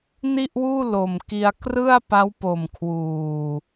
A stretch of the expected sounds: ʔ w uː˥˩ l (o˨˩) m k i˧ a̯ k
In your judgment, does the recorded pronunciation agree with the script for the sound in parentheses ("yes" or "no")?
yes